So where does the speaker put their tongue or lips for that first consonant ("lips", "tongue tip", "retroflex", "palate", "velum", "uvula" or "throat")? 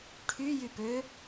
retroflex